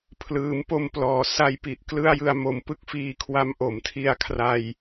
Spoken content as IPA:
pʰ l ɯː˩˦ m p o˧ m p l ɔː˩˦ s a˧ j p i˨˩ ʔ k l ɯ˥˩ a̯ j ɯ˧ a̯ m o˨˩ m p ɯ˥˩ k̚ f iː˧ kʰ w a˦˥ m ʔ o˩˦ m tʰ i˧ a̯ kʰ r a˧ j

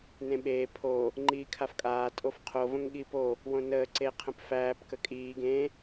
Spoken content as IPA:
n ẽ ɓ eː pʰ o | ŋ͡ǃ iː kʰ a f kʼ aː tʼ o f qʰ o v ə̃ ŋ ɠ iː p o | w õ n əː ǀ e qʰ ə̃ p f æː p k ə kʼ iː ɡ ẽ

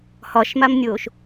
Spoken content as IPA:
h ɒ ʃ m a m nʲ oː ʃ

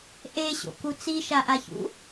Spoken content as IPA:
ʔ e ɕ o̰ k u t͡s i ʃ a ʔ a ç ṵ

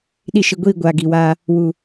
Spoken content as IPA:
ɗ i˧ ʃ ɨ˨ ɡʷ iː˦˨ ɡʷ aː˨ ɡ i˨ w aː˧ | w u˨

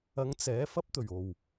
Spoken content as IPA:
ɐ˨˧ ŋ t͡s ɛː˨˥ f ɐ˧ p̚ t̪ ɵ˨˩ ɥ o˨˩ w

